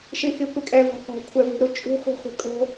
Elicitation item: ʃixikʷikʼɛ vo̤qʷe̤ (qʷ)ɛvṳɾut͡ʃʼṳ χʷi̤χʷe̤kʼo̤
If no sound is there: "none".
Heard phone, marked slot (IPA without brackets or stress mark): kʷʰ